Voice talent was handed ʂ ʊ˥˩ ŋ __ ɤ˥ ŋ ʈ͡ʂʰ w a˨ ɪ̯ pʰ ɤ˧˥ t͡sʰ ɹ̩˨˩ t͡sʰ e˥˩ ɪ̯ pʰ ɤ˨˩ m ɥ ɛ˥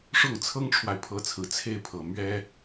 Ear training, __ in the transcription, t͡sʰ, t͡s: t͡sʰ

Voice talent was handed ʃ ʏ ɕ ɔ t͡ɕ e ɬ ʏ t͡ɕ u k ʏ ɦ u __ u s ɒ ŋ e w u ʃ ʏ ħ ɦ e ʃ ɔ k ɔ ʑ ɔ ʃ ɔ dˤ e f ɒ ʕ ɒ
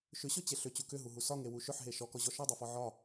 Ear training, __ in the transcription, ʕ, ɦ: ɦ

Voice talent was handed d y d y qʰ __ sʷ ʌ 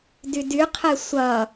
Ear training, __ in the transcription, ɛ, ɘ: ɛ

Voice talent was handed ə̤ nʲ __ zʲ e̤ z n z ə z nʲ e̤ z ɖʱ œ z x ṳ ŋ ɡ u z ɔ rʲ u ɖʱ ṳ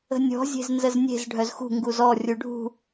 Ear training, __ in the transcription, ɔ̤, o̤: ɔ̤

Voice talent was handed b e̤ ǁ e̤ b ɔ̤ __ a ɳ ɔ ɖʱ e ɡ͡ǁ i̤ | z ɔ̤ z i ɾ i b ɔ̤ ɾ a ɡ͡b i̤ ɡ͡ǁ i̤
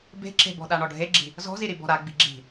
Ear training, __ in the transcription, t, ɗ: ɗ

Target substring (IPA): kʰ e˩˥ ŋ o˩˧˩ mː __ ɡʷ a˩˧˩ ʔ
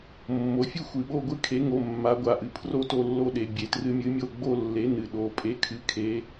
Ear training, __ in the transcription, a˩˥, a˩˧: a˩˥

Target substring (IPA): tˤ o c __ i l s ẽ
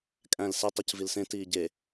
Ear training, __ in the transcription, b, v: v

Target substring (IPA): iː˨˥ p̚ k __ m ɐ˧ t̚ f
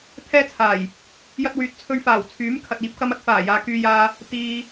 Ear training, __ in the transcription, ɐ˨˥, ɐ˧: ɐ˧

